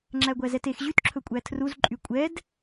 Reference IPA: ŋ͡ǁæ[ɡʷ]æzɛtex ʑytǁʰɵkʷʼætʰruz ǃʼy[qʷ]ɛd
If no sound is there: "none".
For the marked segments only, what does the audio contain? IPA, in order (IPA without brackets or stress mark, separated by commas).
ɡʷ, kʷʼ